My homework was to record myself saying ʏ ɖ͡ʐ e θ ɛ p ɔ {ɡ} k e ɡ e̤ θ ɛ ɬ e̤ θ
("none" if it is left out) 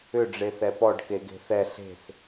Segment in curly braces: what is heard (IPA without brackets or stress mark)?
ɖ